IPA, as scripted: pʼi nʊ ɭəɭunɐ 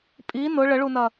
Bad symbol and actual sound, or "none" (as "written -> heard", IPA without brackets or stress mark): none